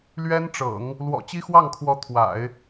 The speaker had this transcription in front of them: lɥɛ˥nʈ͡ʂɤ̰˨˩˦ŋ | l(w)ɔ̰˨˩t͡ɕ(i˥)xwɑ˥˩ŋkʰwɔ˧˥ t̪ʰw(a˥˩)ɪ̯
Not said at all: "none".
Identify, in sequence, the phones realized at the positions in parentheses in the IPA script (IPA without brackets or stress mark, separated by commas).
w, i˥, a̰˨˩˦